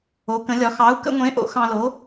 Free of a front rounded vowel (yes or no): yes